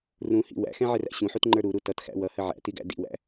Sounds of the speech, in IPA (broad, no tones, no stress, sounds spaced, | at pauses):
r ũ h ḭ w æ̰ x ɛ̃ ʕ ɪ r æ̰ ɕ ũ ħ u t ŋ͡ǃ ə˞ ɾ u ɾ u t ʌ t x æ̰ w ʌ h ə ʕ æ̰ t i ɡ æ̰ d ḭ w æ̰